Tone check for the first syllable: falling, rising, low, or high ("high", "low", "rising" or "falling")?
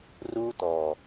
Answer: high